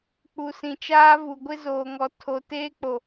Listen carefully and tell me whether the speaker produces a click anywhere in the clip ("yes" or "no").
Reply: no